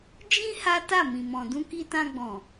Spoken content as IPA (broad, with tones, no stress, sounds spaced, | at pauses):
d͡ʒ ĩ˦ h a˦ t a˦˨ m ĩ˨ m ɔ̃˨ d ũ˧ k i˧ t ã˧ ɡ͡b ɔ̃˨